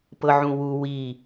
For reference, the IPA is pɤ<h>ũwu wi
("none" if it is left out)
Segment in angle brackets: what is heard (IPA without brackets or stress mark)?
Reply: ʕ